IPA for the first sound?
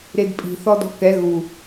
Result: ɾ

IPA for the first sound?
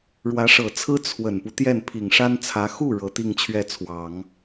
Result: ɻ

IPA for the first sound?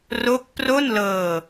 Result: r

